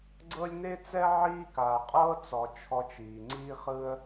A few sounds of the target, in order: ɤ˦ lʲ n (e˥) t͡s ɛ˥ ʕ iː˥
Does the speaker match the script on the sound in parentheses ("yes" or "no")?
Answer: yes